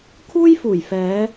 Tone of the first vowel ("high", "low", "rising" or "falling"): high